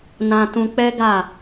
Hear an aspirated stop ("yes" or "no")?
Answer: no